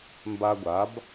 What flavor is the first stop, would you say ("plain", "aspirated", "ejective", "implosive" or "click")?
plain